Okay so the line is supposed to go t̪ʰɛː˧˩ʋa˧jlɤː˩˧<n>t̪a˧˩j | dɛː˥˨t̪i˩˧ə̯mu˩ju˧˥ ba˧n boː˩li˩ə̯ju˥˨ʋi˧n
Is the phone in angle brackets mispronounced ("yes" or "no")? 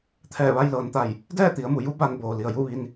no